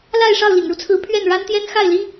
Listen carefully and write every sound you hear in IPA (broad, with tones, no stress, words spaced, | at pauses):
la˥˧ɪ̯ ʂɑ˥˩ʊ̯lḭ˨˩ŋɻu˦t͡sʰɹ̩˧˥ pʰɥɛ˥˩n ɻa˥nt̪jɛ˥n xa˥˩ɪ̯li˥